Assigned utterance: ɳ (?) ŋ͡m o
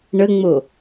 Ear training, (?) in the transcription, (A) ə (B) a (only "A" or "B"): A